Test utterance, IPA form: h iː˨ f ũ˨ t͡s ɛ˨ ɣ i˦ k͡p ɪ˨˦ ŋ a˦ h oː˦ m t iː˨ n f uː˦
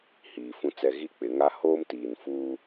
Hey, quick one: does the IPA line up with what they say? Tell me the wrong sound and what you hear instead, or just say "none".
none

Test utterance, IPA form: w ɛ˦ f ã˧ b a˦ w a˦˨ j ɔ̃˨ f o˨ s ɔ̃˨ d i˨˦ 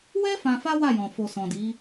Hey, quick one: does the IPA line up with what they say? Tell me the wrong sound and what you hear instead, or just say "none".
b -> f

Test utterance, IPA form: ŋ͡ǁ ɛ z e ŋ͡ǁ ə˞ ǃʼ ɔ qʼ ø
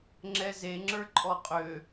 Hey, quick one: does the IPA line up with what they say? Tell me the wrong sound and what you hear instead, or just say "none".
none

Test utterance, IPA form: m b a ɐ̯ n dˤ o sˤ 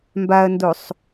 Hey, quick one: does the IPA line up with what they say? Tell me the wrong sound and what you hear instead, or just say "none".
dˤ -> d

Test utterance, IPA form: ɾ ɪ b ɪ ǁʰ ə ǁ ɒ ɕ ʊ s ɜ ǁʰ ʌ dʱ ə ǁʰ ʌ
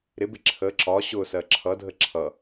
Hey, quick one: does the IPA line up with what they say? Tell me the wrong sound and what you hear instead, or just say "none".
none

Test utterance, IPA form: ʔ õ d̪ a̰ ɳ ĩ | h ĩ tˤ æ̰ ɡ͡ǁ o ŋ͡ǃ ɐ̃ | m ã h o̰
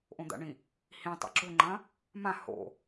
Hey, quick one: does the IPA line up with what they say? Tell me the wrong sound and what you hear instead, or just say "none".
æ̰ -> a̰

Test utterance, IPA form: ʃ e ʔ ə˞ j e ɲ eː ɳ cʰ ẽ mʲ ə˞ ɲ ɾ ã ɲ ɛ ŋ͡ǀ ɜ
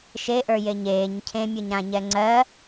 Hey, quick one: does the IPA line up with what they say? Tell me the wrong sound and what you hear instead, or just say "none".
ɳ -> ɲ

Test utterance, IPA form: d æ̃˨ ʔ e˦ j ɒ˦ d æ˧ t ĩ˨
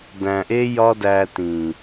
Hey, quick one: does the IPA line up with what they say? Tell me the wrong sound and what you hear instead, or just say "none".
none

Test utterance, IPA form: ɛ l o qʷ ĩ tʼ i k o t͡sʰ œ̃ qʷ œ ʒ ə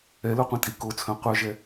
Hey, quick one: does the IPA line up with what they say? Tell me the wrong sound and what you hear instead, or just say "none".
ə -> ɛ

